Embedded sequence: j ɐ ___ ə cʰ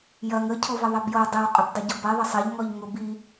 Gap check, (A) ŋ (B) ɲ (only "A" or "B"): A